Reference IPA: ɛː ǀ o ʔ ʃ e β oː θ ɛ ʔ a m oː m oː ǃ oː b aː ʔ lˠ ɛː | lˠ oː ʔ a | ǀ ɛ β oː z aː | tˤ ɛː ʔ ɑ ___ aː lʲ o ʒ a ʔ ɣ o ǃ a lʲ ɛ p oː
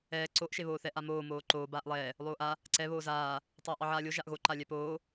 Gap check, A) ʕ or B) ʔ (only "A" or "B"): A